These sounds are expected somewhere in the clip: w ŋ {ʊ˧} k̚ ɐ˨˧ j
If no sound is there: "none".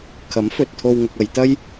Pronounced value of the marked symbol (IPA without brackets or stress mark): ʊ˧